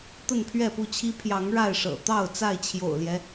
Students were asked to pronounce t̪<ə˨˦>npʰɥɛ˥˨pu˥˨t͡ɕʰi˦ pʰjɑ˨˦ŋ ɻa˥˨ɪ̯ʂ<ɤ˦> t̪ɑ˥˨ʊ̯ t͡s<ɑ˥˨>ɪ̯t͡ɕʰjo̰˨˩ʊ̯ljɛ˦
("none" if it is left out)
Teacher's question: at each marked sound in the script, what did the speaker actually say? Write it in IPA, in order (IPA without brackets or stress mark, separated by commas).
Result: ə˥˨, ɤ̰˨˩, a˥˨